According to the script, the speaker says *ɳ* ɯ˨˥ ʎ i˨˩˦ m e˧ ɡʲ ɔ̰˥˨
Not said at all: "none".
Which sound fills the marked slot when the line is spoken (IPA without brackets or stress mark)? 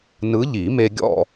n